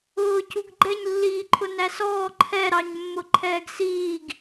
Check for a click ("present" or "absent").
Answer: present